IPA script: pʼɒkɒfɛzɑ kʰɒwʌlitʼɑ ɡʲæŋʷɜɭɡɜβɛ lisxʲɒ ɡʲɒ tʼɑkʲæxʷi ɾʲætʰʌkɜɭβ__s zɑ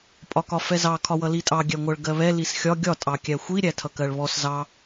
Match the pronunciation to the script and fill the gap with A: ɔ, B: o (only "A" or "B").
A